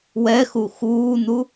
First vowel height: mid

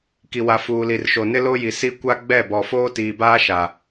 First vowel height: high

